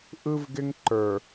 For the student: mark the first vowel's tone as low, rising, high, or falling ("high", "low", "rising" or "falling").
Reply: high